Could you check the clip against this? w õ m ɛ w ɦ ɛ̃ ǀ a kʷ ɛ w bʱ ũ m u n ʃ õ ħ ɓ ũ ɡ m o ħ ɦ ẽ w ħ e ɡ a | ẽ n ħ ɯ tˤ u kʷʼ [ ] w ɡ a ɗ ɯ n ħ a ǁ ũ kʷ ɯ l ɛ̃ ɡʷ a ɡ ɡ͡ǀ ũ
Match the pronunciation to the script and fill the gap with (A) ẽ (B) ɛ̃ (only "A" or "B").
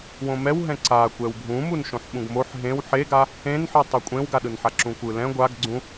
A